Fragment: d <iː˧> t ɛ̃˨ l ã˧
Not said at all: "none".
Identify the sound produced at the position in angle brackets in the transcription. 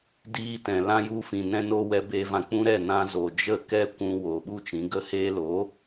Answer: iː˧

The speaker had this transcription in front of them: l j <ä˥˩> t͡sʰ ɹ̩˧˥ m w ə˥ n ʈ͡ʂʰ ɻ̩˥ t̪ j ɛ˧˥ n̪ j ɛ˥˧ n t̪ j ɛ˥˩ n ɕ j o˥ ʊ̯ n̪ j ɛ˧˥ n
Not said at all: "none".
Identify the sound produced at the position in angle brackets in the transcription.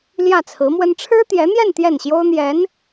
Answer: ä˥˩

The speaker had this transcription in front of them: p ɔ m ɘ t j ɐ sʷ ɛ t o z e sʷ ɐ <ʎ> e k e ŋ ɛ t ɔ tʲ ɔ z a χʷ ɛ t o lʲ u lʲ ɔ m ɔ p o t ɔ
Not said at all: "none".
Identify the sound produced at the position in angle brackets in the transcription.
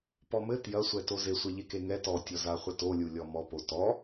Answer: ʎ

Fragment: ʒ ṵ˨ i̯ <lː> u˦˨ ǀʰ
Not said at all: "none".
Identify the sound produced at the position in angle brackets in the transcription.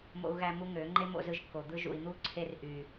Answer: n̪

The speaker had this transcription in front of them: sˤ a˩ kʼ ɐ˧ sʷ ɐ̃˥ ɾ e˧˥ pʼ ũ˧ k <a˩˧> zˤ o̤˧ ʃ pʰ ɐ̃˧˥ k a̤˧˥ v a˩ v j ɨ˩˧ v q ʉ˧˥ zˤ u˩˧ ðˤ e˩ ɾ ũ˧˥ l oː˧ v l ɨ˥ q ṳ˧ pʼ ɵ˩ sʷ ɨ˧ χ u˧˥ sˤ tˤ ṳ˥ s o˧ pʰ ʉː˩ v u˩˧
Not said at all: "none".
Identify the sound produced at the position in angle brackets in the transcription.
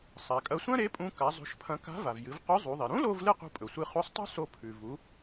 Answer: a˩˧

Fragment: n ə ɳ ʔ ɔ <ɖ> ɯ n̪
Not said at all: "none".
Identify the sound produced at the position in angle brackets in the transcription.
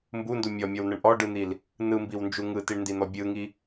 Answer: ɖ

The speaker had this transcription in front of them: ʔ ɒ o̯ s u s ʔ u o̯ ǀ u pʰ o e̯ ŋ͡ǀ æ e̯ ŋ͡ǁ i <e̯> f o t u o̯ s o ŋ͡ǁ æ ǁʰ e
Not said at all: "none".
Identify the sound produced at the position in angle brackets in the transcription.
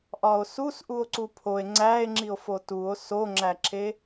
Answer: o̯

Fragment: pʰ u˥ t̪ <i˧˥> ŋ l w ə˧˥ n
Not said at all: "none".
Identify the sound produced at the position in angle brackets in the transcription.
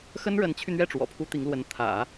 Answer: i˧˥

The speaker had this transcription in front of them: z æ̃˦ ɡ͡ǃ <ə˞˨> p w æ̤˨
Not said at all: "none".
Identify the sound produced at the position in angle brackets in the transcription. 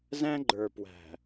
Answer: ə˞˨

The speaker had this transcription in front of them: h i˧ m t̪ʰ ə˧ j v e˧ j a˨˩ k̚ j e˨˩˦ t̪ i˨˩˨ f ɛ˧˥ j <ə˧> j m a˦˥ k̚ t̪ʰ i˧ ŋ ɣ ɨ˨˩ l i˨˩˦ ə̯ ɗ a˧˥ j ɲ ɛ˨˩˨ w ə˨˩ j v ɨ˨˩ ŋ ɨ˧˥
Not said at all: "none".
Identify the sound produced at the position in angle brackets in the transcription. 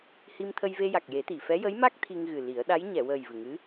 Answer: ə˧˥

